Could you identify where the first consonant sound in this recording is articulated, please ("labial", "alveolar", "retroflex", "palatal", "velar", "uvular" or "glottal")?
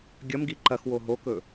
velar